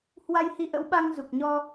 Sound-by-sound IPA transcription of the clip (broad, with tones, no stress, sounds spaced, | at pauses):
h w a˧ j h i˧ ʔ ə̰˧˥ w ɓ a˧ ŋ z u˨˩ k̚ ɲ ɔ˧